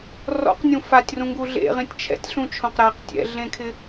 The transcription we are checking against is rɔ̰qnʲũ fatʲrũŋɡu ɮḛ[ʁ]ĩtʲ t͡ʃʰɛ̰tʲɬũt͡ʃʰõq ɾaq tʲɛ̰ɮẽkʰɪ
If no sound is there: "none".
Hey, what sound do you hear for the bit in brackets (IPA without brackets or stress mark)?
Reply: ʁ